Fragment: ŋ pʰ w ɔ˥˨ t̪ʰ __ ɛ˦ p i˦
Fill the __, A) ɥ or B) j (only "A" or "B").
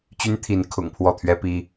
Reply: A